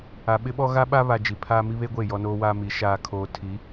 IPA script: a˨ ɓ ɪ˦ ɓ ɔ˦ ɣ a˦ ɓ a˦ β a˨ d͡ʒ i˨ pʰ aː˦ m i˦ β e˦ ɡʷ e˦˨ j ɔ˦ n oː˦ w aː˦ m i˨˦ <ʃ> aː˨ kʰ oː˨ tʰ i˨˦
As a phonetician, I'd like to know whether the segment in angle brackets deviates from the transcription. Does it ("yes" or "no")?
no